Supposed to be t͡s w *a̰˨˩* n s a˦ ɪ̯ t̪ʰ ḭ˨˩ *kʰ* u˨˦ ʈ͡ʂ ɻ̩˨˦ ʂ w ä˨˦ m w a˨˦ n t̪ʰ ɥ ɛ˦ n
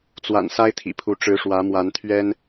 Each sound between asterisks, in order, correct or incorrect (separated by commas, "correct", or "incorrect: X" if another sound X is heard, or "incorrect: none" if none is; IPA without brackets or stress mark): correct, incorrect: pʰ